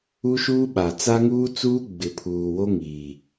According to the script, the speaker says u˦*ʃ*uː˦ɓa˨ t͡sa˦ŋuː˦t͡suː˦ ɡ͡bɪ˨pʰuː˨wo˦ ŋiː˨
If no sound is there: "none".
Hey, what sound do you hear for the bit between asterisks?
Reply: ʃ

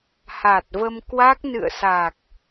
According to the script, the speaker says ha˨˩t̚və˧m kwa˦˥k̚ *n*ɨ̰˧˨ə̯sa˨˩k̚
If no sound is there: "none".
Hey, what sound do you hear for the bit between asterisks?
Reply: n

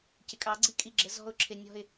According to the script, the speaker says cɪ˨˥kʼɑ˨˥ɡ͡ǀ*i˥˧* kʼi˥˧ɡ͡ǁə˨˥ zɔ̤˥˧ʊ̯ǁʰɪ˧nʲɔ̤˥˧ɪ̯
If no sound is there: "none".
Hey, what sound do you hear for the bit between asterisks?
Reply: i˥˧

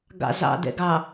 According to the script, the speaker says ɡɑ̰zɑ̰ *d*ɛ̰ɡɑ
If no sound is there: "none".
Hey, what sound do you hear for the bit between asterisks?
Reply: d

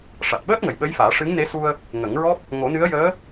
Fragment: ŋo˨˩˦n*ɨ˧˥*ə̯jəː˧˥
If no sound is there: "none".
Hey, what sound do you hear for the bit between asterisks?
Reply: ɨ˧˥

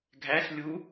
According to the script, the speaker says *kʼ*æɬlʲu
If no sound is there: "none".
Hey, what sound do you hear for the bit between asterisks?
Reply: ɡʱ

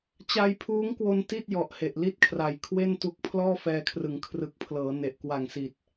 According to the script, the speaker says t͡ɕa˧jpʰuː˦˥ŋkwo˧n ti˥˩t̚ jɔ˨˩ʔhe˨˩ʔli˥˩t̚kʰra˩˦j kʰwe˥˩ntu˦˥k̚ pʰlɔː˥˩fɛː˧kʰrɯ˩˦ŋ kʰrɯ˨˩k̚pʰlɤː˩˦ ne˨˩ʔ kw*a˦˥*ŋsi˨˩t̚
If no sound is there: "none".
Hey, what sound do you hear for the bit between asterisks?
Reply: a˨˩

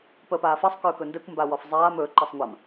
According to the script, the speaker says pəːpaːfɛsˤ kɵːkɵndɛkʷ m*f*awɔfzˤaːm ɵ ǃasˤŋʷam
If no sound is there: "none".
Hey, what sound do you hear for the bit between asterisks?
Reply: b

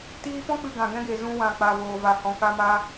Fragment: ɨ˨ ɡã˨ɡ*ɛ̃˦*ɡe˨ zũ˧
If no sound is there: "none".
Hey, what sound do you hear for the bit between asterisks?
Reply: ɛ̃˦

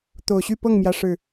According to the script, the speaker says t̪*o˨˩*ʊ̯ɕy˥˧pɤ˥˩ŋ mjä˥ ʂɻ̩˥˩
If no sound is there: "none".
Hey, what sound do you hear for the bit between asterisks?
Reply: o˨˩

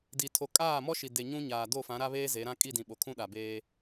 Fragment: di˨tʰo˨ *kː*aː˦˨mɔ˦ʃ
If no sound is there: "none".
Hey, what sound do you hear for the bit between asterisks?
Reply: kʼ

